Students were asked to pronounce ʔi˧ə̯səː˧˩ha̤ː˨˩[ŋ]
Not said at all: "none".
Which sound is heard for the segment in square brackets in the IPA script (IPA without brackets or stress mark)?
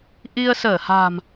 m